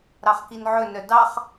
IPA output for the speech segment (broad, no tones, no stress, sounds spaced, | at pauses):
ɾ ɑ χ k i n ʕ ɵ n œ d ɑ χ